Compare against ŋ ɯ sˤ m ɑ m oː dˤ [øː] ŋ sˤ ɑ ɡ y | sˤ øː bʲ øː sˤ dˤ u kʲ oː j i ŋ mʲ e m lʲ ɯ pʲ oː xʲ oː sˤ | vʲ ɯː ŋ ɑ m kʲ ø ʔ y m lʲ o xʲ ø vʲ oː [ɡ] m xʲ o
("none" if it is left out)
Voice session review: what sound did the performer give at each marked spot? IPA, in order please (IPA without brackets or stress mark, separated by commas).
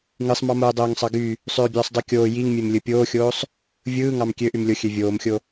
øː, none